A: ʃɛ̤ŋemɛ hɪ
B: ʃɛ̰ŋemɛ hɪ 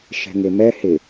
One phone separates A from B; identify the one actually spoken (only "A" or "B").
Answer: A